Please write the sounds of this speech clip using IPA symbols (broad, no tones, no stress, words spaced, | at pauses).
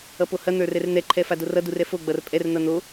ʌpohɐ n̪ə˞rɛrn̪ɛ ǃʰɛfadorʌ durɛfo ɡ͡bʌrpʼɛr n̪ʌn̪o